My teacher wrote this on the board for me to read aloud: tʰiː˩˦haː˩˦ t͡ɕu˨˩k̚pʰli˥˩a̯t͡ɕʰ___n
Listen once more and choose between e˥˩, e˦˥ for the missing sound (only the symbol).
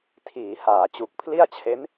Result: e˦˥